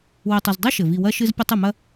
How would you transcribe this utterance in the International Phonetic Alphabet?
w ɨ˨ tˤ ɐ˨ z dˤ ɨ˥ ʃ ɘ˩ v i˨ w ɐ˦ ʃ ɨ˦ z pʲ ɐ˦ tˤ ɨ˨ m ɐ˦

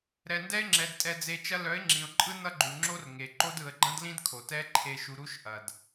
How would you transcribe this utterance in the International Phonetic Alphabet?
ɾ ɛ˨ n d ɛ˦ ɪ̯ ŋ͡ǁ ɛ˨ d tʼ ɛ˨ d͡z e˨ t͡ʃ ɐ˦ l œ˨˦ ɪ̯ ŋ͡ǁ ĩ˨ ʊ̯ ǃʼ ɯ˦ n ʌ˦ ɡ͡ǃ u˨ ŋ͡ǁ o˦ r ŋ e˨ ǃ o˦ d ɯ˨ ə̯ ɡ͡ǃ ɐ̃˦ d l ĩ˦ d kʰ o˨ t ɛ˦ ǃʰ e˨ ʃ u˨ ɾ u˦ ʃ ʔ ɐ˨ d

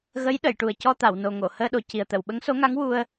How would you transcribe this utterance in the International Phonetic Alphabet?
ɣ ə˧˥ j ɗ ə˨˩˨ j ʈ u˨˩ ə̯ c ɔ˧ t̪ a˨˩˨ w n o˨˩ ŋ o˨˩˨ h əː˧ ɗ o˨˩ c i˨˩ ə̯ t̪ ə˨˩˨ w ɓ ə˧˥ ŋ s o˧˥ ŋ a˧˥ ŋ w u˧ ə̯

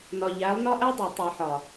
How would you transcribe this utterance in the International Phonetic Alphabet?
n ɒ˨ ʎ æ˨˦ lˠ n ɒ˦ ʔ æ˦ dˤ i˨ tˤ e˨ ħ ɒ˨

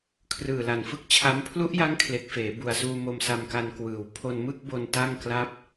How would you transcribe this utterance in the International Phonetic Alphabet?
kʰ r ɯː˨˩ l a˨˩ n f ɯ˥˩ k̚ t͡ɕʰ a˦˥ m pʰ l u˦˥ ʔ j a˦˥ ŋ kʰ l e˨˩ k̚ f eː˩˦ b u˨˩ a̯ s uː˧ m o˧ m s a˧ m k a˧ n k w ɯː˨˩ w pʰ o˧ n m ɯ˥˩ k̚ b o˧ n t a˥˩ ŋ k l a˥˩ p̚

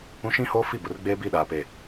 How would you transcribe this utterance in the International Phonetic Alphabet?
ũ˦ ʃ ĩ˦ h oː˦ f i˦˨ b ʊ˨ r ɡ͡b eː˦ b i˦˨ ɗ aː˨ p e˨

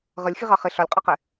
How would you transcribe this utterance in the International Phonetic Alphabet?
ʁ ə lʲ x i ʁ ɑ χ ɪ ɬ ɒ lʲ qʼ ɑ q ɪ

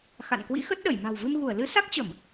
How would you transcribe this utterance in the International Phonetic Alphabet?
x a̰˧˨ n k w ḭ˧˥ x ə˦˥ t̚ ɗ ə˧˩ j m a̤˨˩ w v ɨ˧ m ɣ u˧˩ ə̯ l ɨ˨˦ s a˦˥ k̚ t͡ɕ ə˧˩˨ m

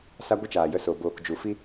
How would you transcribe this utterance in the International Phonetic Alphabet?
s a˦ ɡʷ ə˦ t͡ʃ aː˨ j ə˧ s o˨ b oː˨ k d͡ʒ u˨ f i˧

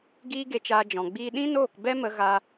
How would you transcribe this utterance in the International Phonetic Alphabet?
ɡ iː˦ ɡ e˧ t͡ʃ aː˧ d͡ʒ ɔ̃˨ ɡ͡b iː˧ ɗ ĩ˦ n oː˦˨ k b ɛ˦ m ə˧ ɣ a˧

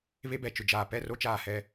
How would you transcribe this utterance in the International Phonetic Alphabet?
β e˦ b ɛ˨ t͡ʃ ʊ˨ d͡ʒ aː˨ p ɛ˦˨ r o˦ t͡ʃ aː˨ h ɛ˨

